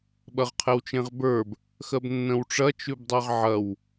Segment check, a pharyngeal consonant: present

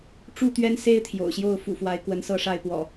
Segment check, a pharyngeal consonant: absent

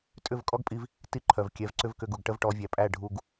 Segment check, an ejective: present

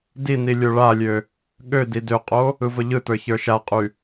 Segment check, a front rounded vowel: present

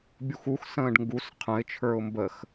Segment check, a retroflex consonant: present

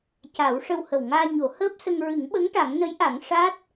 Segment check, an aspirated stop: absent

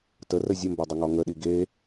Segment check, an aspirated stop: absent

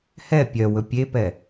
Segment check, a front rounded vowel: present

